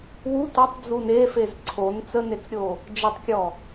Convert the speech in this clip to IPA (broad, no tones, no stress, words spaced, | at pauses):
wu tʌtˤ d͡zune fezǀʰon t͡sənet͡sɾʲo | d͡ʒətˤkʲɔ